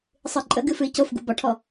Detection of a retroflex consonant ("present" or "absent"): present